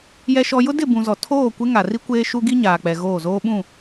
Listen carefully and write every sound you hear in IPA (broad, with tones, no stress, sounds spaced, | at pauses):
j ɛ˦ ʃ ɔ˦ j ʊ˦ d ɪ˦˨ b ũ˨ z ɔ˨ tʰ oː˦˨ kʷ ɪ˦ ŋ a˨ r i˦ kʷ eː˦ ʃ u˦ ɡ i˦ ɲ aː˨ k͡p ɛ˨ ɣ oː˦˨ z oː˦ ɓ ũ˦˨